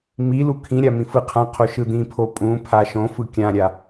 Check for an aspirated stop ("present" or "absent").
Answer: present